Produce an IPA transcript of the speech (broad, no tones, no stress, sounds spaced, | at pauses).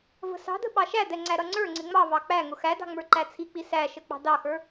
v ə̤ s ɑ̤ d ə̤ ɓ ɑ ʃ æ d̪ ɛ ŋ͡ǀ æ ɾ ʌ ŋ͡ǀ ə˞ ŋ͡ǀ ɪ ŋ͡m ɑ v ɑ k͡p æ ŋ ʊ x æ d ɑ̤ ŋ͡m ə˞ ǃ æ t͡sʰ i k͡p i s æ ʃ ə k͡p ɑ̤ d ɑ x ə˞